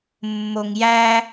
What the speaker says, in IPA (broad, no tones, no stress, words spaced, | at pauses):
mːoŋjæ